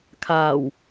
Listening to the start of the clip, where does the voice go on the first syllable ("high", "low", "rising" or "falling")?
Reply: low